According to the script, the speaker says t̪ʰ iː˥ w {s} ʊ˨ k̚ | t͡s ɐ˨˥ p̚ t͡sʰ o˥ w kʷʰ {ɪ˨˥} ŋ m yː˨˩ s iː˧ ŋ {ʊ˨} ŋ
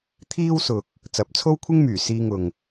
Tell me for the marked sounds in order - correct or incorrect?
correct, incorrect: ɪ˥, correct

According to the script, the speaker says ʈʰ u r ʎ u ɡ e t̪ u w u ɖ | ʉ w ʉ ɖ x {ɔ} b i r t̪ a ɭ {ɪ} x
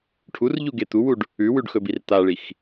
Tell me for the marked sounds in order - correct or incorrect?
incorrect: ɵ, incorrect: i

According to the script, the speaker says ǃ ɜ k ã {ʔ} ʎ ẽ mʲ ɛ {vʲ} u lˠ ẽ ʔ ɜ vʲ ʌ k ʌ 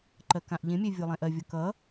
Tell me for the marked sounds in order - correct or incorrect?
correct, correct

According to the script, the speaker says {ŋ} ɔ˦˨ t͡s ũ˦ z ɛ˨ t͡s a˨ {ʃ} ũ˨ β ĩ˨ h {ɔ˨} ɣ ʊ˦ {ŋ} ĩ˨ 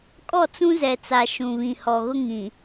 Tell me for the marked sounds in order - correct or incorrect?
incorrect: kʼ, correct, correct, correct

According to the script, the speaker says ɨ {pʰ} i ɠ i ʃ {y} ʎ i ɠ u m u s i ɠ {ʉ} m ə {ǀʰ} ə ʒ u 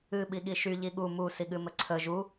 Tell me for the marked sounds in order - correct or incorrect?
incorrect: ɓ, correct, incorrect: ɨ, correct

